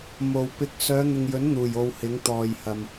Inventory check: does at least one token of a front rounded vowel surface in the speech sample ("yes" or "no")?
yes